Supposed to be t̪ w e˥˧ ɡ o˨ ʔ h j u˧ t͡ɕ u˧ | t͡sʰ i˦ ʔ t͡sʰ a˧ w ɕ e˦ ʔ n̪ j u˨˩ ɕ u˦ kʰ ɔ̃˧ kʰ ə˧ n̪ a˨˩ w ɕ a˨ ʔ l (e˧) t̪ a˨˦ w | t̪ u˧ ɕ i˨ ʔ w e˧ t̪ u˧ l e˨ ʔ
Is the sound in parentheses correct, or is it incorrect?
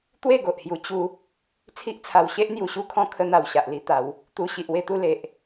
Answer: incorrect